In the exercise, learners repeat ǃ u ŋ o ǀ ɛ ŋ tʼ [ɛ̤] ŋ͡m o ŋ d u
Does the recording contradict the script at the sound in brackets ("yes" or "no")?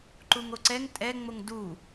yes